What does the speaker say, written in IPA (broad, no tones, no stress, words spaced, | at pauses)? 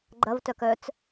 ɡ͡ǃɐvtœk œt͡s